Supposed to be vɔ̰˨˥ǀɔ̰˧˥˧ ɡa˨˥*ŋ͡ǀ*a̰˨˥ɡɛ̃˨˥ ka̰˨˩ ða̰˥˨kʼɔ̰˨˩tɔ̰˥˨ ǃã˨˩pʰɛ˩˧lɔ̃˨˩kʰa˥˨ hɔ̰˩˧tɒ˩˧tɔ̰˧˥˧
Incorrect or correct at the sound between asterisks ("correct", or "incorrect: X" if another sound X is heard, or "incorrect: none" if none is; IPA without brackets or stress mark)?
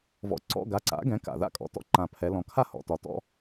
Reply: incorrect: ǀ